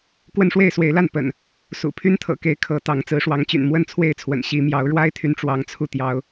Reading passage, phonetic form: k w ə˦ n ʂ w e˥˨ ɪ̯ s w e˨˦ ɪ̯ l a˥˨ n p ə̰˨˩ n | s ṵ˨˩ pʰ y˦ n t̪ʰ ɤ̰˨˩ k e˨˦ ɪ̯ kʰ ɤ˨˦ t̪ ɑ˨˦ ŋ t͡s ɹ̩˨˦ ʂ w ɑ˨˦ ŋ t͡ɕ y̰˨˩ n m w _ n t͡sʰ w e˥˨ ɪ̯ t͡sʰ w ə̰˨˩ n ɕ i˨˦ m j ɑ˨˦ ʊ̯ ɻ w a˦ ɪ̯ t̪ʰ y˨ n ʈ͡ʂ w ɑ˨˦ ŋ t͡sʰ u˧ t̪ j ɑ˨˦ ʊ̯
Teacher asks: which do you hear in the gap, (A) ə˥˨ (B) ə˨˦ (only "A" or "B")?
A